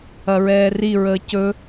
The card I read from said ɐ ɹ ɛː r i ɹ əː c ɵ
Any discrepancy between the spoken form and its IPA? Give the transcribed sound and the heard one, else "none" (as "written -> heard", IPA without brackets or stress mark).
none